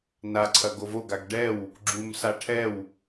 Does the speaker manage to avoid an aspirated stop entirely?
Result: no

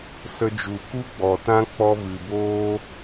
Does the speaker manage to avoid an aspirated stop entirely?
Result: yes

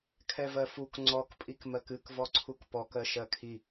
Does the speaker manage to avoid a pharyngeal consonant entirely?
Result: yes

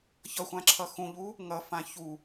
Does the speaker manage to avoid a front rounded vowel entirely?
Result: yes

